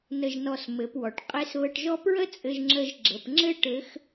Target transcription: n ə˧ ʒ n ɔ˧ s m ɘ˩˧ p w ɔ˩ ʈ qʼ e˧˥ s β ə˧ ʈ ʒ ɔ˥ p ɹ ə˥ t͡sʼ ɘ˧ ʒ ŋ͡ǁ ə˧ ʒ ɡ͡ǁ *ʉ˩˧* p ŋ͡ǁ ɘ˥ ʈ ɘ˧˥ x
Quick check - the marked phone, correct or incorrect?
incorrect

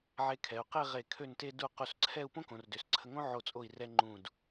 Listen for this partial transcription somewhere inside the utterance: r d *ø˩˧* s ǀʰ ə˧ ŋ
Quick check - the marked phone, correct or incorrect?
correct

